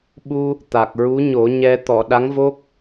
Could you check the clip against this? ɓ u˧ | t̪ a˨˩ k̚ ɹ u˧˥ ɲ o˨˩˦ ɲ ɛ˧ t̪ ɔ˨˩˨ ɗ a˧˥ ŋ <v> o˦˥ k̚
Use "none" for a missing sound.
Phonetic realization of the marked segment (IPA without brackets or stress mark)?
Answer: v